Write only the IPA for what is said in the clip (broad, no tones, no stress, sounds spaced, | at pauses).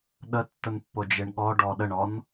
ɗ ə tː ə n pː o d͡ʒ e ɳ ɠ ɔ ɖ ɔ ɗ ə ɳ ɔ n